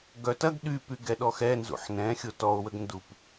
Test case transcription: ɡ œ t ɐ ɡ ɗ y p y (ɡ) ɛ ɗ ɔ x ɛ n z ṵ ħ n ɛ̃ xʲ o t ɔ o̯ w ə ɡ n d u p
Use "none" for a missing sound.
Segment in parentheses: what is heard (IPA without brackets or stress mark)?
ɡ